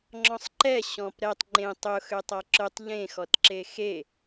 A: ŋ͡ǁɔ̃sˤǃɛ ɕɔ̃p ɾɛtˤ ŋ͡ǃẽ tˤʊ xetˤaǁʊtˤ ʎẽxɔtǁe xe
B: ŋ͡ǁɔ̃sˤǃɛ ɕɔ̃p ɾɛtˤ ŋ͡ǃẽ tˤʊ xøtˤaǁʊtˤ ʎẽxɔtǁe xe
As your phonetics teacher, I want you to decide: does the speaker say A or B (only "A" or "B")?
B